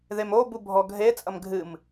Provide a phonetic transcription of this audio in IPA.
ðemobu bʱɔɡʱet͡sʼɐm ɡʱɨm

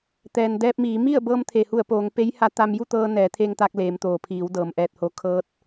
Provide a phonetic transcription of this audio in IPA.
t̪ɛː˩ndɛː˧p̚miː˩˧ mi˥˨ə̯ bɤː˧mt̪ʰe˩hu˧˩ə̯poː˩˧ŋ pe˧˥jha˧˥ t̪a˧mju˥˨t̪ɤː˧ nɛː˩˧t̪ʰe˧ŋ t̪a˧k̚leː˩˧mt̪oː˩pʰiː˩˧w dɤː˩mʔɛː˧˩t̚ho˧ kʰɤː˧t̚

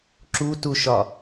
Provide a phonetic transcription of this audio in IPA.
ǁutuʃɒ

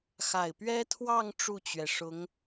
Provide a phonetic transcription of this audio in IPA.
xa˨˩ɪ̯pɥɛ˥t̪ʰwɑ˥˧ŋ ʈ͡ʂu˥˩t͡ɕɥɛ˩ʂʊ˧˥ŋ

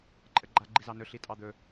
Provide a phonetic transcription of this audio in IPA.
ǃʼəɡ͡ǃa ɡ͡ǃizɑnɵ ɬitʼɑd̪ɵ

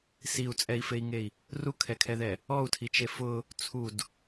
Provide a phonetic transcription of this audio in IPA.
siu̯t͡sʼɛi̯fei̯ŋei̯ | rukʰɛkʰɛðɛ | ɔu̯tʰit͡ʃe fʊ | t͡sʰud

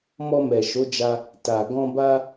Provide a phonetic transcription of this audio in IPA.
mɔ˧mɛ˨ʃo˨˦d͡ʒa˧ | ta˨ ɡɔ̃˧ba˦

